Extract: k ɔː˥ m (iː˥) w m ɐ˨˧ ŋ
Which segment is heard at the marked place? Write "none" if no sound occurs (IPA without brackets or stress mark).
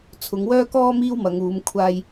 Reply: iː˥